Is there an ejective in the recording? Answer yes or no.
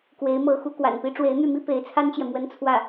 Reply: no